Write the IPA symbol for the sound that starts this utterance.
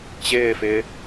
t͡ɕ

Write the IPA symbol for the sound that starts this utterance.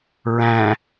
ɹ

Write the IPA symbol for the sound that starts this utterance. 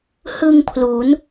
h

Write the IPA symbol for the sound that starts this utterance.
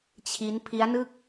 t͡ɕʰ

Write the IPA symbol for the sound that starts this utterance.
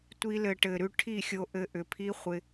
tʷ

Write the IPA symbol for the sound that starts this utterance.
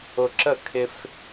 ʊ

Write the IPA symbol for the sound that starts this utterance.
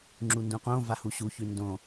ŋ͡ǁ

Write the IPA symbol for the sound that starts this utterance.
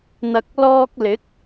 n̪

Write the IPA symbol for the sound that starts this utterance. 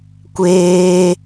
kʷ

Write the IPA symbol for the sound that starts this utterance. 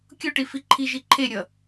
kʲ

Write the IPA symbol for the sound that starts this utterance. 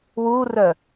w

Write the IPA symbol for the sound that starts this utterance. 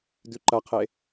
d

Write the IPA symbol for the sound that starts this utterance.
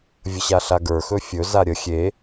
vʲ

